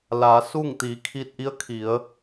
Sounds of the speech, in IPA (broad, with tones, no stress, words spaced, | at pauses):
laː˩˧suː˥˨ŋ t̪iː˩˧kʰiː˧t̚ʔi˧˥ə̯ kʰi˩˧ə̯